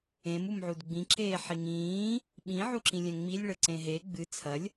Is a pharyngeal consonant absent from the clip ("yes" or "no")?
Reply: no